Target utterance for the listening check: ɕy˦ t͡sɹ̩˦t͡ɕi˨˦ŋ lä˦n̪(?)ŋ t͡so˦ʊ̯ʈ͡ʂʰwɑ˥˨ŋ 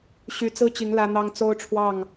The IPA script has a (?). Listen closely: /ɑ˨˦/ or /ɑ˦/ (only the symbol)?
ɑ˦